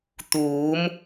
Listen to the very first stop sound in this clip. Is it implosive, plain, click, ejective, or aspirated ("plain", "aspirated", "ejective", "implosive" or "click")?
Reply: plain